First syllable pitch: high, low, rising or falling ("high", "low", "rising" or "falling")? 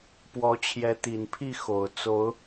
rising